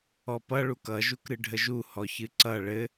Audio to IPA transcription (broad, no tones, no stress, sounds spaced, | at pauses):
ɔ p ʌ ɭ u k ʌ ʒ u k ɾ ɨ ɖʱ ə ʒ u h ɔ ç ɨ ǀ ʌ ɭ ɘ